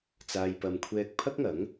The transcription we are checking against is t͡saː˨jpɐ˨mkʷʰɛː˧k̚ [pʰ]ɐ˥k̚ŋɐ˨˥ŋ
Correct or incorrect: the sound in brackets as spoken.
correct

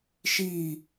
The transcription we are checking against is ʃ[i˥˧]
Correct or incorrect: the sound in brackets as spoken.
correct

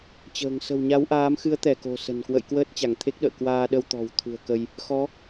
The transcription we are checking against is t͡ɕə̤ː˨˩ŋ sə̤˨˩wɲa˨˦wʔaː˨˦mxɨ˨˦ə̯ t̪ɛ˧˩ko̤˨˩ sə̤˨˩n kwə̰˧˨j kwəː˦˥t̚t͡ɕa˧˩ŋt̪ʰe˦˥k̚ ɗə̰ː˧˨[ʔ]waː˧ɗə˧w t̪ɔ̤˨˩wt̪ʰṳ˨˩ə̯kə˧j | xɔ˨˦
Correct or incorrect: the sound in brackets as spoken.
incorrect: k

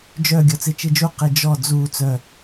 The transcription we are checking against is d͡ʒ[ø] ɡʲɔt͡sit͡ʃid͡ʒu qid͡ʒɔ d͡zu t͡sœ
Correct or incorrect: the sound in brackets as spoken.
incorrect: œ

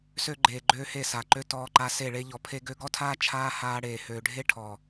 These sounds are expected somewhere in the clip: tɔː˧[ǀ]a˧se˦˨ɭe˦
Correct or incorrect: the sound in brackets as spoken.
incorrect: ǃ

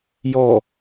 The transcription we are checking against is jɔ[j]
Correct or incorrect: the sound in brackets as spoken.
incorrect: none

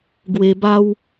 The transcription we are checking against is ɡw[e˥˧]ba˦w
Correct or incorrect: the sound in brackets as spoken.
incorrect: e˧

